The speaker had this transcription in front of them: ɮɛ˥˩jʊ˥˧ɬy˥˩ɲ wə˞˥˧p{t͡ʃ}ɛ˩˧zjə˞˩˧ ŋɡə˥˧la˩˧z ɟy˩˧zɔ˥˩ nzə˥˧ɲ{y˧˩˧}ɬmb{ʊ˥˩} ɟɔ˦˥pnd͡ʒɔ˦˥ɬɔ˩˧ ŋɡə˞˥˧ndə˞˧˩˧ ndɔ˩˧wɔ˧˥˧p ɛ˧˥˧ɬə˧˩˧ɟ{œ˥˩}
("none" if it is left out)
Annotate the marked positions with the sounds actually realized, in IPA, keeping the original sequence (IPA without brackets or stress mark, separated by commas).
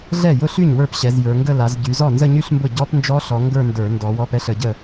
ɕ, y˥˧, ʊ˥˩, ə˥˩